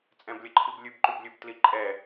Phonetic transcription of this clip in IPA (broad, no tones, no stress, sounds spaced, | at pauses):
t͡sʼ ɛ̃ b lʲ ə ǃʰ i b lʲ ʉ b ǃ ʉ b lʲ ʉ b t l i ǃʼ ɛ